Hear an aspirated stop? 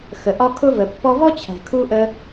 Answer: yes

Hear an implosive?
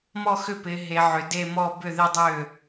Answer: no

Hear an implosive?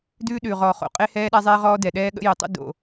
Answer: yes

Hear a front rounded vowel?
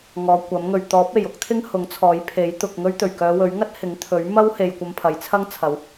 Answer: yes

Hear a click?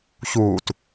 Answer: no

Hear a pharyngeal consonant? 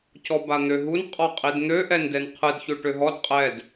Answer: no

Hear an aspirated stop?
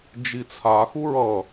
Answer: yes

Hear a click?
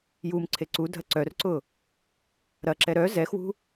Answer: yes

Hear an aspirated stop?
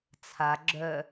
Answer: yes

